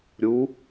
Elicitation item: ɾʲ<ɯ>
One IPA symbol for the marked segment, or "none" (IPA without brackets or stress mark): u